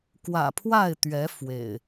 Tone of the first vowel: low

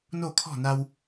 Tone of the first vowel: falling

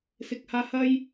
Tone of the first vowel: low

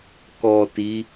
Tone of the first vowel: low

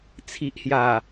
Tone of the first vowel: low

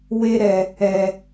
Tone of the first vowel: high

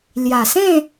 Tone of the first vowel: low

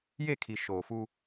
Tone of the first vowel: falling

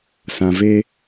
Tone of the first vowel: low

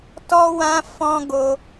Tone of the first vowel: high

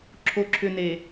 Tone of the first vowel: low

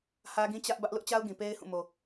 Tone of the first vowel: high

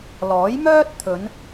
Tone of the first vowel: rising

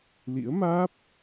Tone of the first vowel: rising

